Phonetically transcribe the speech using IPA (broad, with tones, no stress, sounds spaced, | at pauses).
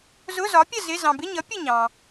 z ʊ˧˥˧ z ɒ˨˥ pʲ ə˥˨ z ɪ˧˥˧ z ɑ̃˨ b ɪ˧˥˧ ɲ ʌ˨˥ pʲ ə˥˨ ɲ ɑ̃˨